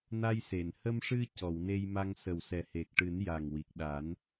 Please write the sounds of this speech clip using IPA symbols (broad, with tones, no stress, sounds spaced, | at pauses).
n a˧ j s e˨˩˨ n h ə˧ m ʂ ɨ˧ c ɔ˨˩˨ w n e˧ j m a˧ ŋ s ə˨˩ w s ɛ˨˩ h e˨˩ k̚ ʈ ɨ˨˩˦ n j a˨˩ ŋ w i˨˩ k̚ ɗ a˨˩˦ n